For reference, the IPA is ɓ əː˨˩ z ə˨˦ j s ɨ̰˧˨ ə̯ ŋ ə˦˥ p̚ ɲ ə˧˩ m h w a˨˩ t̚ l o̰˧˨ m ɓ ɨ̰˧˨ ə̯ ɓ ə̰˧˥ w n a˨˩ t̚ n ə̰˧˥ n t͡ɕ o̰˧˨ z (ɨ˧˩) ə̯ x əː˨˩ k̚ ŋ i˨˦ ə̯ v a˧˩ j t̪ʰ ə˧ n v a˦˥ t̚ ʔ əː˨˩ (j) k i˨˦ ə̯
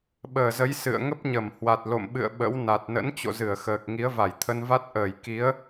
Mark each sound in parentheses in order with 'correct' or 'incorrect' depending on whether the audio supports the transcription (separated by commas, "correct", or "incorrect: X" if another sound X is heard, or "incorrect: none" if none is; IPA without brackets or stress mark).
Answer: correct, correct